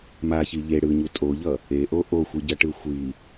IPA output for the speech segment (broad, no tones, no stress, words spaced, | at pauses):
maçi ʎe ɽɯɲu tʼoʎʌ | eʔo ʔoxʷiɟʌʈɯ xʷi